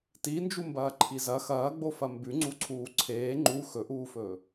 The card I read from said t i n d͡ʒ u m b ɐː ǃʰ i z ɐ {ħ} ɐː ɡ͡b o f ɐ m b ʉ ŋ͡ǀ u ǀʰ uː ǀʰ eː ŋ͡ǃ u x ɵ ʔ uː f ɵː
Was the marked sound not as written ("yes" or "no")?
yes